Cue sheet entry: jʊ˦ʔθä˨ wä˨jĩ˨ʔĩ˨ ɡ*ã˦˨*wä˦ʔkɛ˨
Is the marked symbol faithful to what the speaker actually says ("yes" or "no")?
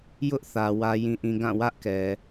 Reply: yes